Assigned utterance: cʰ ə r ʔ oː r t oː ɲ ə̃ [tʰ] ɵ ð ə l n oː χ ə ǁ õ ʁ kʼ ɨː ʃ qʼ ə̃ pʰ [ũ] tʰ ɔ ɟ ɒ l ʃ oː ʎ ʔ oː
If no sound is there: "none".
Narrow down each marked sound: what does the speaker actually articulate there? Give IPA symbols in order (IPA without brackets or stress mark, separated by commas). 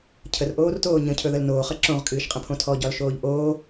cʰ, õ